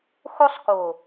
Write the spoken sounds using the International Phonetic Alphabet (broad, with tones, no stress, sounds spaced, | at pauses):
x o˦ sˤ k o˨